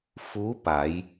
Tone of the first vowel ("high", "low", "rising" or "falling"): rising